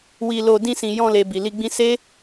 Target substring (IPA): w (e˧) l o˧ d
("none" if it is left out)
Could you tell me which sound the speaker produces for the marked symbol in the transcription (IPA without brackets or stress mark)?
i˧